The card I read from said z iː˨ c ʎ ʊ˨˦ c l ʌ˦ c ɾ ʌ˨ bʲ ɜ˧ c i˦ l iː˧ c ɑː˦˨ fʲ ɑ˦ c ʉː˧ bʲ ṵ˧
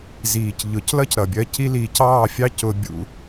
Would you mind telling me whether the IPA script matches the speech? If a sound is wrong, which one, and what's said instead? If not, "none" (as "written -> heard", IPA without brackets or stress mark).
ʉː˧ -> ʊː˧